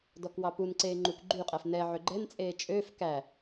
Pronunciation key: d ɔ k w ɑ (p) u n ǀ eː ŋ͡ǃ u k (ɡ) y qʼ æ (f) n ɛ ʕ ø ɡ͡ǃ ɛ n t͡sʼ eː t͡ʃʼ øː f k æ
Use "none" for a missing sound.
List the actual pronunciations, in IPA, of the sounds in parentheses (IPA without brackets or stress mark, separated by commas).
p, ɡ͡ǃ, f